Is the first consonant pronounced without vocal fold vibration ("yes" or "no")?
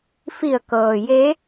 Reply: yes